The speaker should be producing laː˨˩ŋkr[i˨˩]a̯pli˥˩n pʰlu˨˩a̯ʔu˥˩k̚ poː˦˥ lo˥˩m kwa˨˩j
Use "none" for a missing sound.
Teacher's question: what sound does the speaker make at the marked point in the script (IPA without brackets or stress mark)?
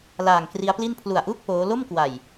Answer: i˦˥